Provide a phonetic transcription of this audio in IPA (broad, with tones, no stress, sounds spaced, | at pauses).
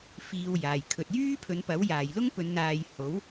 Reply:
f iː˧ w j aː˨ j kʰ ɵ˨ t̚ j yː˥ pʰ ɵ˨˧ n p ɐ˨˥ w j aː˨ j l ʊ˥ ŋ p ɵ˨˧ n n̪ aː˧ j h o˨˥ w